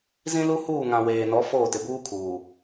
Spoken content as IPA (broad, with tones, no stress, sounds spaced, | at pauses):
z ĩ˦ l u˦ h uː˦˨ ŋ ã˨ w eː˨ n ɔ˨˦ f oː˦˨ t ɪ˨ b uː˦ kʰ uː˨